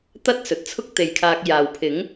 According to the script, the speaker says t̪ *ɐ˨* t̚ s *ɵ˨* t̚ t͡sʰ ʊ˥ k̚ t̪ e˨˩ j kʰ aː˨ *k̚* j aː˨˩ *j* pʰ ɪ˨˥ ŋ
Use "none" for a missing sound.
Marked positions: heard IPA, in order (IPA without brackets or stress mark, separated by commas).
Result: ɐ˥, ɵ˨, k̚, w